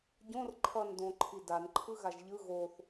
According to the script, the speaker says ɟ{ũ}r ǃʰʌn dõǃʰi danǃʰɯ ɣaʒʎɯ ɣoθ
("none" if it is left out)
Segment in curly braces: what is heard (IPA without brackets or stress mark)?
õ